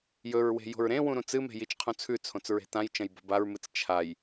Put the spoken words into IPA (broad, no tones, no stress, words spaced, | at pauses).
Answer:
jɵɹwe̤ jo̤ɹɾẽwũ ɾũt͡sɨme̤ jit͡ʃqʰũt͡sʰʉt͡sʰõt͡s ɹe̤tãjt͡ʃɐ̃j bo̤baɹmɨt͡s t͡ʃʰaj